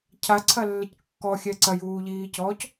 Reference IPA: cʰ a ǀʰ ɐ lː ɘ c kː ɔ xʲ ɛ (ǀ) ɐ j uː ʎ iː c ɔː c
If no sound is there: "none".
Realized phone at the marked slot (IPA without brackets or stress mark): ǀ